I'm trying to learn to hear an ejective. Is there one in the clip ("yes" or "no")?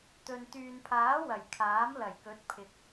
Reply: no